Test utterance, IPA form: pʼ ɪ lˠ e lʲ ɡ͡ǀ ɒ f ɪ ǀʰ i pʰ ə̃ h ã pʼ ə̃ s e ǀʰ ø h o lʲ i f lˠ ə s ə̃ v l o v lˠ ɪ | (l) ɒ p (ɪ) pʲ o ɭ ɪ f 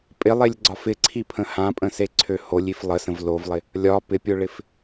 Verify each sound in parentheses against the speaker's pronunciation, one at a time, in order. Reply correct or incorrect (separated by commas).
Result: incorrect, correct